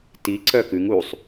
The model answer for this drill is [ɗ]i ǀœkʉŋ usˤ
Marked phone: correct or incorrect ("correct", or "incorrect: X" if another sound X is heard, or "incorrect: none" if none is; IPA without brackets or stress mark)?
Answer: incorrect: t